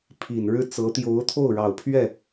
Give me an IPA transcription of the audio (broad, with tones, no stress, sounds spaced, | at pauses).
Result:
pʰ i˨˩ n ɻ ɻ̩˥˩ t͡s ɤ˧˥ t̪ j o˧˥ ʊ̯ t̪ʰ o˥˩ ʊ̯ ɻ ɑ˨˩ ʊ̯ pʰ ɥ ɛ˥˩